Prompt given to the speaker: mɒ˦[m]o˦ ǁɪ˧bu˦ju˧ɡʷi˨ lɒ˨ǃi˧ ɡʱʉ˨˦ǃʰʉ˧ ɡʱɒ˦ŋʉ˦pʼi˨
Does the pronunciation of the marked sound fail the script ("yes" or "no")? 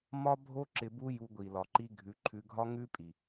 yes